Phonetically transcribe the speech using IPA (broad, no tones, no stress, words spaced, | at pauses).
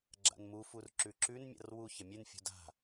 ɡ͡ǁa̰nmufur ǁʉǁʉnmʲa̰r wu çɐmʲʉnfʲṳ da̤